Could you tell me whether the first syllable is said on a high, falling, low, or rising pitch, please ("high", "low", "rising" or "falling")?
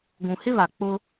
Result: low